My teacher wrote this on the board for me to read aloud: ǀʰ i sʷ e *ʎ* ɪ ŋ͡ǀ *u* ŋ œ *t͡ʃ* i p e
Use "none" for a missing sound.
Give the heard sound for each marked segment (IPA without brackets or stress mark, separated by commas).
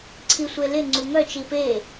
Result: l, u, t͡ʃ